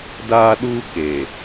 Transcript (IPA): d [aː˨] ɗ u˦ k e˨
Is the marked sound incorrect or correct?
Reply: incorrect